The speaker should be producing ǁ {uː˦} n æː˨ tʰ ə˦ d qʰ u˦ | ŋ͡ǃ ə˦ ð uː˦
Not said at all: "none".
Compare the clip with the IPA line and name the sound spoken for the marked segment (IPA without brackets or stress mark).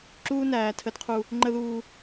uː˦